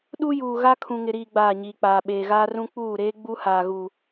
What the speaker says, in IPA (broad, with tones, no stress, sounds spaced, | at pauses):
ɗ u˦ j uː˨ ɣ a˦ kʰ ũ˨ ŋ ɪ˨ ɾ iː˨ ɡ͡b aː˦˨ ɲ iː˨ k͡p aː˨ ɓ eː˨ ɣ aː˦ r ũ˦ k͡p uː˦˨ ɾ eː˦ ɡ͡b u˦ h aː˨ ɣ u˨